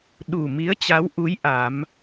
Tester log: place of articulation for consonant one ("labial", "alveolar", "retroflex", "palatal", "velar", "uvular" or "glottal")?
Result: alveolar